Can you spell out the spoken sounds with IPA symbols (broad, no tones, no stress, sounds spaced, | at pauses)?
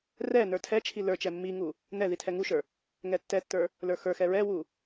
r ɛ n ə˞ tʰ ɛ t͡ʃʰ i l ə˞ t͡ʃ ɛ mː i ŋ u | n ɛ ð i tʰ ɛ ŋ u ʃ ə˞ | ŋ ɛ tː ɛ tː ə˞ | l ə˞ x ə˞ x ɛ ɹ ɛ w u